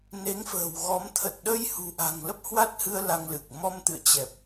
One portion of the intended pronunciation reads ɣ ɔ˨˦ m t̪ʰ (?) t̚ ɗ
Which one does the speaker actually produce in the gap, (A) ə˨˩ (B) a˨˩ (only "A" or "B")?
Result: A